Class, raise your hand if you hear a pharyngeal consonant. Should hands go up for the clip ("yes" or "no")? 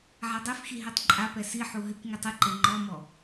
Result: yes